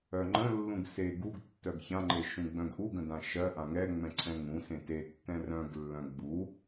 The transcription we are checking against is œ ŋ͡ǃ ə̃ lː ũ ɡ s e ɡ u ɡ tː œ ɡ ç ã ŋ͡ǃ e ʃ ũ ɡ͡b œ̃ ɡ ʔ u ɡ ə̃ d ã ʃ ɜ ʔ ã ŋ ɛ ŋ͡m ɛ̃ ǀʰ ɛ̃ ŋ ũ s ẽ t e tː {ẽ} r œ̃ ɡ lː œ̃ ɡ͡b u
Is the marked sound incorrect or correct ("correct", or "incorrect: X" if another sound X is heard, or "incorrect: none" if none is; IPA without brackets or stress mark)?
incorrect: ɛ̃